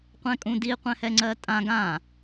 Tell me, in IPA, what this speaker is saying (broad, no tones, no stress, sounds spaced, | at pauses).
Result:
qʷ ɛ̃ kʼ ũ d i qʷ ɛ̃ h ɛ ŋ͡ǀ ɜ tʼ ã ɡ ã